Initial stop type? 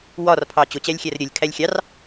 aspirated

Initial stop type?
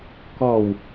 plain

